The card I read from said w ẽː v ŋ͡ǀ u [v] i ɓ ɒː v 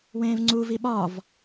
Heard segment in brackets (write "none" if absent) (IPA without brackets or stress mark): v